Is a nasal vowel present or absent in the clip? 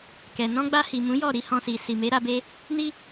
present